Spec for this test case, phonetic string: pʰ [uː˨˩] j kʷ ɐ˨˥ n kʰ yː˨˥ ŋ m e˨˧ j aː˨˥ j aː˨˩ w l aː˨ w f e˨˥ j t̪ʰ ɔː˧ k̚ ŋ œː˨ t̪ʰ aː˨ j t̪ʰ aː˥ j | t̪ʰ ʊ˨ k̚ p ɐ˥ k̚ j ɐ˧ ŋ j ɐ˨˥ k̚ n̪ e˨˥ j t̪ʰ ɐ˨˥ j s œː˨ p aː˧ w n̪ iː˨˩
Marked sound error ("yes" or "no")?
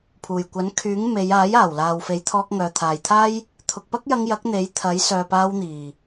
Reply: no